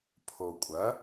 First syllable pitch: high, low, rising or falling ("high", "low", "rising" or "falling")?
low